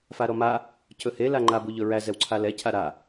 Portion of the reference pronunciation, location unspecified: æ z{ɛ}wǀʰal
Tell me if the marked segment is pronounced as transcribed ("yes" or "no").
yes